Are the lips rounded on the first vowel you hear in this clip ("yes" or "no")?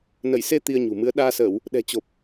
no